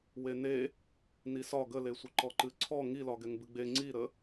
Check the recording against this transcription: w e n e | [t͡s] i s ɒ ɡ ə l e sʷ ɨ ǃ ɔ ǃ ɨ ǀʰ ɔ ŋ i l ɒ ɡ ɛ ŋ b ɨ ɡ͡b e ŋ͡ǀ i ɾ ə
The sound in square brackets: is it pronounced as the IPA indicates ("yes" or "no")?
no